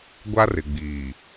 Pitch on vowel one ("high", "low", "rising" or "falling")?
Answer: high